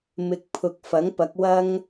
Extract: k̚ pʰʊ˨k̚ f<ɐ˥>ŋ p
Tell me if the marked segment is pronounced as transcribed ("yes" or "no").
no